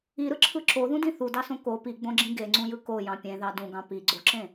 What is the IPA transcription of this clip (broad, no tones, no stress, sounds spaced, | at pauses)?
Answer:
i ɾ ɯ ǁʰ ɯ ǁ o ð ũ d ĩ θ u d ɑ s õ k o p i ɡ͡b õ ɡ͡ǁ ĩ ɡ e ŋ͡ǀ ũ j ɯ k o j ɑ̃ pʲ ẽ ð ɑ d ũ ɡ ɑ̃ p i ɡ͡ǀ o ǁ ẽ